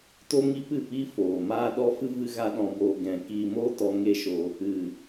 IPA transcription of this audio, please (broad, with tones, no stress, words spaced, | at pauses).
to˦ŋi˦pɨ˦˨piː˦ foː˨ maː˦ɗɔ˦ fɨ˦ vɨ˦ɣa˦ɗɔ̃˧boː˧ ɡɛ̃˧ kiː˧moː˦tɔ˧ ŋe˦ʃo˧ | ɨ˨